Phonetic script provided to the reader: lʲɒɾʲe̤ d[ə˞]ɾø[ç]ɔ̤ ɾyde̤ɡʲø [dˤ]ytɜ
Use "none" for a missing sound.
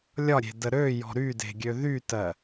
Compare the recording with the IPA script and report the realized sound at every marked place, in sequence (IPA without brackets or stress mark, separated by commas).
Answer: ə, j, ð